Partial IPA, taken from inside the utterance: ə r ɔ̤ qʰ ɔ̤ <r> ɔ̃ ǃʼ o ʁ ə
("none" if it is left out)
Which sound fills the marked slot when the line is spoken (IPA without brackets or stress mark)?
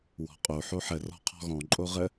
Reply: ɣ